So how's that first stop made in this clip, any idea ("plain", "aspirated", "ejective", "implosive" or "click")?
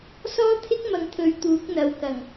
aspirated